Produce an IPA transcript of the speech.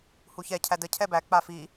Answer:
h u ç ɛ cʰ æ d ə cʰ ɛ b æ k͡p a f i

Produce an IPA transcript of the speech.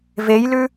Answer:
v e j l ʉ

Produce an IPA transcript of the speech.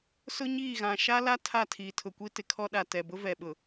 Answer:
s ʊ˦ ɲ iː˦˨ ɣ ã˨ ʃ a˦ l a˦ tʰ a˦˨ tʰ iː˨ tʰ ʊ˨ kʷ i˦ t ɪ˨ kʰ ɔ˦ ɗ a˨ t ɛ˨ b ʊ˦ v ɛ˨ ɓ ʊ˨

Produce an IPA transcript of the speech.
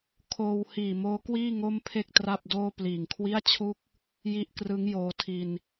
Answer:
kʰ oː˧ w h iː˨˩ m oː˦˥ k w iː˥˩ ŋ o˥˩ m pʰ e˥˩ k̚ t r a˥˩ p̚ d oː˥˩ p l iː˨˩ ŋ kʰ w i˥˩ a̯ t͡ɕʰ u˥˩ k̚ | j i˦˥ ʔ k r ɯ˦˥ ŋ j oː˧ tʰ i˧ n

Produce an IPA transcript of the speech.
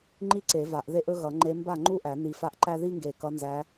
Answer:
ŋ͡ǃ i˥ ǀ e˨˩˦ v a˨˩˦ ʔ ð e˥˨ ʔ ɵ˥ ɣ ʌ˨˩˦ ŋ͡ǃ e˧˥ m b a˥˨ ŋ͡ǃ u˥˨ ʔ æ˨˩˦ n i˨˩˦ f a˧˥ ʔ ǃ æ˥ ð i˥ ŋ ɡ e˧˩ k ʌ˧˥ n z æ˧˥

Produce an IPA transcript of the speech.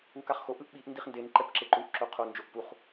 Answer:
u k a χ x o ʔ ɯ ʔ ɓ i ʔ n d i χ n d e n ǃ ɛ p ǁ e ǃ u ʔ ǁ o qʰ o n d͡ʒ o ʔ p u χ

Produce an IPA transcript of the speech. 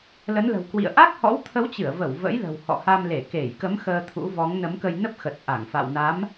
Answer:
l ə˨˦ n l ə̤˨˩ w k w ḭ˧˨ ə̯ ʔ a˦˥ k̚ h ɔ̰˧˥ w t̪ʰ ə˨˦ w t͡ɕ ɨ˧˩ ə̯ v ə˧˩ w v ə̰˧˥ j l ə̤˨˩ w h ɔ̰˧˨ h a˧ m l e˧˩ k e˧˩ j k ə˨˦ m x əː˧ t̪ʰ ṵ˧˥ v ɔ˨˦ ŋ n ə˨˦ m k ə˧ j n ə˦˥ p̚ x ə˨˩ t̚ ʔ a˧˩ ŋ f a̰˧˨ w n a˨˦ m

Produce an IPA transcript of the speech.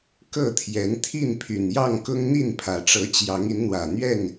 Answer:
k ɤ˥˨ t̪ʰ j ɛ˨˦ n t̪ʰ i˥˨ n pʰ y˨˩ n j ɑ˥˨ ŋ k ʊ˦ ŋ n̪ i˥˨ n pʰ ä˨˩ ʈ͡ʂ ɤ˨˦ t͡ɕ j ɑ˨˦ ŋ i˨˦ n n̪ w ä˨˩ n̪ ɥ ɛ˥˨ n

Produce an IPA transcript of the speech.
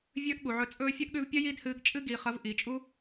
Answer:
vʲ ɵː˦ ʔ ɠ u˨ ʕ ɵ˧ t͡sʼ ɵː˦ fʲ ɐ˦ ʔ ɠ ʉ˧ v pʲ ɐ˦ j i˦ d h ɨː˧ ɡ t͡ʃʼ ɨ˦ ɡ iː˧ χ ɐ˦ v ʔ i˨ t͡ʃʼ u˦

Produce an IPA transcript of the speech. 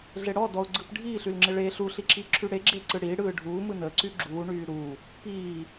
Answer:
ɮ e ɽ ɔ d ɔ ʊ̯ ɡ͡ǀ ɯ p ɖʱ iː ɬ y l ŋ͡ǁ ɪ ɭ e ɬ u ɬ i ǁ i ǁʰ y ɽ e ɡ͡ǁ e ǀ ɯ ɽ iː ɽ ɯː ɖʱ uː m ɯ n əː ǀ y ɡ͡ǁ uː ɳ yː ɾ uː | p iː

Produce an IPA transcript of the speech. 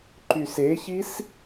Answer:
ǃ y s e ç i s

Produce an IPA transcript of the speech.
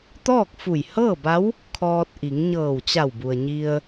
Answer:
t̪ ɔː˥˨ k̚ f u˧˩ j h ɤː˥˨ b a˧˥ w | kʰ ɔː˧ t̚ ʔ i˩˧ ŋ ɲ ɤː˧˩ w t͡ɕ a˧˩ w b u˩ ə̯ ɲ i˧ ə̯

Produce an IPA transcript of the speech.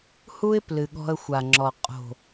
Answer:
h u˦ ɪ̯ p l ɨ˨ ɠ ɔ̤˧ ə̯ xʷ a˨ ŋ͡ǁ ɔ˨ qʼ o̤˨

